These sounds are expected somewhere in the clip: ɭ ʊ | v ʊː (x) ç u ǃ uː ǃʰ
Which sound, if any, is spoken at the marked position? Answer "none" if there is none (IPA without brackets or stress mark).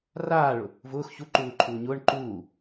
x